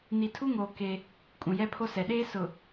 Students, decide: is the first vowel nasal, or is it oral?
oral